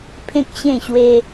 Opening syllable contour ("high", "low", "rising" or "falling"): high